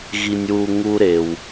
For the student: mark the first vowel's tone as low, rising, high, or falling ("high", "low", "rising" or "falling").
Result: low